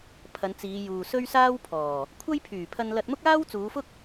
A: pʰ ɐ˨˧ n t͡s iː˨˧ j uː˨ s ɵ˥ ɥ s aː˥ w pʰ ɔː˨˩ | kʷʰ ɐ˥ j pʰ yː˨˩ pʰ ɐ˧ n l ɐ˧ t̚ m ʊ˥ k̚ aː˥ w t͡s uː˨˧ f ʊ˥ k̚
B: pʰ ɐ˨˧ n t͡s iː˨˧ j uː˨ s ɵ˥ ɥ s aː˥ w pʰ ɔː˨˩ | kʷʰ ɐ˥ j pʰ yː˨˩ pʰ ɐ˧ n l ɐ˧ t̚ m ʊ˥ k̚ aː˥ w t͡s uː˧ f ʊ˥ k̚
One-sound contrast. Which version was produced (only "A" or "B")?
A